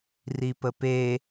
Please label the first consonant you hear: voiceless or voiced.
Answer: voiced